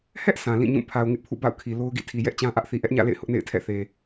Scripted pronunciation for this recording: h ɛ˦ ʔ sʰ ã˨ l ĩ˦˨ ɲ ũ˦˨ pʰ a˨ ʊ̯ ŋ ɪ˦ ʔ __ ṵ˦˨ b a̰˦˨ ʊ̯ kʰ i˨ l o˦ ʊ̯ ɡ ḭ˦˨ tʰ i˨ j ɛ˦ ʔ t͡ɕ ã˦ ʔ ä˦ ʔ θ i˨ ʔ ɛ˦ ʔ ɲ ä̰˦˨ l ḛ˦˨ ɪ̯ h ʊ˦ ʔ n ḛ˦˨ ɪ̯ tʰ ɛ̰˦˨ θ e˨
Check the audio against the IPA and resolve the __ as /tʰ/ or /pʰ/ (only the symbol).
pʰ